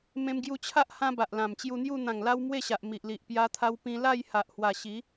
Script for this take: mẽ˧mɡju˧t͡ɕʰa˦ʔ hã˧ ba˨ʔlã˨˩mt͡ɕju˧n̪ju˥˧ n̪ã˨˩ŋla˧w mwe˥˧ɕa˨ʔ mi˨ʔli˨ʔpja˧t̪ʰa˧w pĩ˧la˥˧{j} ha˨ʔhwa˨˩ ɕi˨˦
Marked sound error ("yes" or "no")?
no